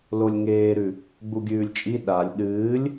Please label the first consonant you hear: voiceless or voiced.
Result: voiced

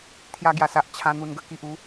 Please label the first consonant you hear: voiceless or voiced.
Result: voiceless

